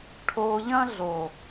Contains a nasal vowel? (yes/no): yes